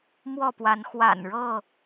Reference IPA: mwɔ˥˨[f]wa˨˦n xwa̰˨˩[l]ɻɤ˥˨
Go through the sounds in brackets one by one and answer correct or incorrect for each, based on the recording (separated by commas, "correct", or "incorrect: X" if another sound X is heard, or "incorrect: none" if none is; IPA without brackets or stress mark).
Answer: incorrect: p, incorrect: n